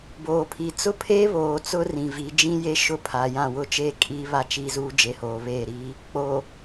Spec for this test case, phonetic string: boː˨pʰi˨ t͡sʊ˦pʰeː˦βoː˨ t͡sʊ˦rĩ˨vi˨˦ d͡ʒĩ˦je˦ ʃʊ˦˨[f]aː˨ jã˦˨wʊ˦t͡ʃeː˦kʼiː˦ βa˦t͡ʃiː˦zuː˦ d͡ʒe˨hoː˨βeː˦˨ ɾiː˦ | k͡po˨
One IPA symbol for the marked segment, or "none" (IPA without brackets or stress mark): pʰ